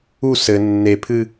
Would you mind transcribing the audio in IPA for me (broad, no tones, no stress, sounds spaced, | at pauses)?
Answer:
u s ɘ nː e pʰ ɨ